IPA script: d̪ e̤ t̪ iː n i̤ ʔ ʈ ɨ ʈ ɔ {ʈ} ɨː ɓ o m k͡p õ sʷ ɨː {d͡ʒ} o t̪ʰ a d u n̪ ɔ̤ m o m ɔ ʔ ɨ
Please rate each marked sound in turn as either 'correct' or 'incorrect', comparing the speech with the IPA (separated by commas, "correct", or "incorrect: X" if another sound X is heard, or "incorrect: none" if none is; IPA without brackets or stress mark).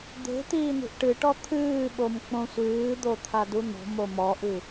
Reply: incorrect: t̪ʰ, incorrect: d̪